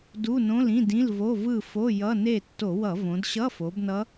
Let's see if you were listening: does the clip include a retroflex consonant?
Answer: no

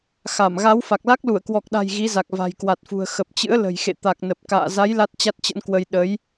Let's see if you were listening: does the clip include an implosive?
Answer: yes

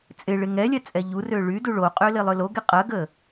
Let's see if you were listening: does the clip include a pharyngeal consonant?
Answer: no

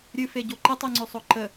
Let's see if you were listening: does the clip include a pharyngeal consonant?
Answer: no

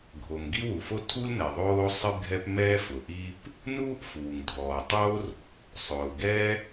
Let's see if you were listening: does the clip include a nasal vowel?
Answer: no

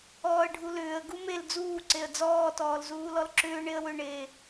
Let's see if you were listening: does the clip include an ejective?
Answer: no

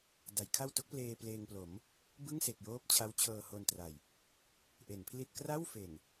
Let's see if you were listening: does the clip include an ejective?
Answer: no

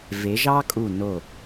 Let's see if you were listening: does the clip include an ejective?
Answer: yes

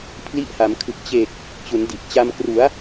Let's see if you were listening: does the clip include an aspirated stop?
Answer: yes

